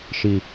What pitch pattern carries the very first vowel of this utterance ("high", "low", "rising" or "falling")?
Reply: low